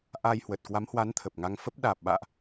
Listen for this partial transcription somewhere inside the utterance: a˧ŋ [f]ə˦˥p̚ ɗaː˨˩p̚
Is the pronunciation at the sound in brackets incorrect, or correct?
correct